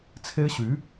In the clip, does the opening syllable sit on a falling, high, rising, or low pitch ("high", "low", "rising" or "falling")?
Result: high